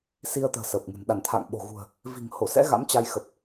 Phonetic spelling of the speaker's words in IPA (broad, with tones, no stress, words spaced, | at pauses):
si˧ə̯t̪ə̤ː˨˩ sə˨˩p̚ŋɨ̤˨˩n ɗa˧˩nt̪ʰa̰˧˨ŋ ɓo̤˨˩ ɣṳ˨˩ə̯ | vi̤˨˩ŋho˧˩sɛ̰˧˥ ɣa̰˧˥m t͡ɕa˧jxə˨˩p̚